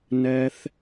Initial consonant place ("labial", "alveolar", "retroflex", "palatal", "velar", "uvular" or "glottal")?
alveolar